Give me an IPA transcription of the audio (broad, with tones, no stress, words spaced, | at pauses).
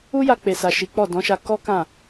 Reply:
u˦ja˧k͡pe˨sa˨ ʃi˨˦k͡pɔ˦˨ dɔ̃˨˦ʃa˧ kɔ˦ kã˦˨